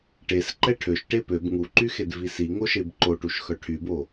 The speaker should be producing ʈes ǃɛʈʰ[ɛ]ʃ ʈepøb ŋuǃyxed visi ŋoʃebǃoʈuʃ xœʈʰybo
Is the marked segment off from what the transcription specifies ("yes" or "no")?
yes